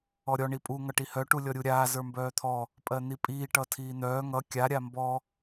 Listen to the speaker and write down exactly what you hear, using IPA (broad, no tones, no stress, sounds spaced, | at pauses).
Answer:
ɔ ɾʲ ɔ ɳ i pʼ u ŋ ʌ ʈ i h œ ʈ u lʲ ɔ ɾʲ u ɾʲ aː z ə˞ m b œː t̪ʰ ɔ | pʼ ɜ n̪ i pʼ iː ʈ ʌ tʰ iː n̪ œː ŋ ʌ kʲ a ɾʲ a m b ɔ